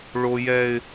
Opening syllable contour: high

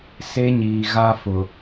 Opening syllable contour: high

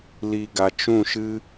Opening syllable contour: low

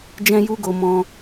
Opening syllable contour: high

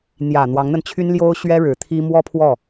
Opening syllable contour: low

